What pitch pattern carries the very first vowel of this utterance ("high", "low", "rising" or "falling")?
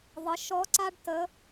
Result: rising